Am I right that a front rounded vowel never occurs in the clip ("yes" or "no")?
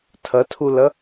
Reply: yes